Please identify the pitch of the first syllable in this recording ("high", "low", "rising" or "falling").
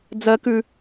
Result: low